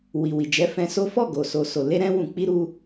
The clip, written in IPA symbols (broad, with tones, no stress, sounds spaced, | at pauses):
w i˨ w i˨ d͡ʒ ɛ˨˦ f ɛ̃˧ s o˦ f ɔ˦˨ ɡ o˨ s o˨ s o˨ l e˧ ɾ ɛ̃˧ w ũ˧ k͡p i˦ ɾ u˧